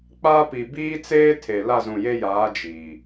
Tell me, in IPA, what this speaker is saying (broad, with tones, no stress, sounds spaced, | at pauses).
k͡p a˦ p i˨ b iː˦ t͡s eː˦ tʰ e˨ l a˦˨ z ũ˨ j e˦ j aː˨˦ d͡ʒ iː˨